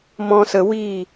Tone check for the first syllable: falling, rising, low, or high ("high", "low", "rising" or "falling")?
high